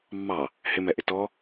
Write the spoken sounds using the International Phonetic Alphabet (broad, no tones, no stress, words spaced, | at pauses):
mːɑ | hɪmɛʔɪ tɔ